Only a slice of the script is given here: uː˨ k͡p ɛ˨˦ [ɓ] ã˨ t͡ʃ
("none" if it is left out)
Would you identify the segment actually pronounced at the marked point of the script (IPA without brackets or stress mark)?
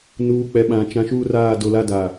ɓ